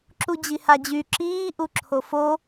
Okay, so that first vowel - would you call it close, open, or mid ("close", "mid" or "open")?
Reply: close